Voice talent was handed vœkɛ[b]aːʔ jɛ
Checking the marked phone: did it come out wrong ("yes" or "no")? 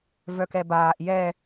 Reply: no